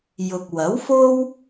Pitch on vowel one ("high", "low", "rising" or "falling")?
low